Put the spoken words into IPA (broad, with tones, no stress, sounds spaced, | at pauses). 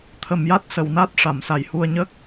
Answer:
t̪ʰ ə˨˩ m j a˦˥ t̚ s ə˨˩˨ w n a˦˥ t̚ ʂ a˨˩˨ m s a˨˩ j h u˧ ə̯ ɲ ə˦˥ k̚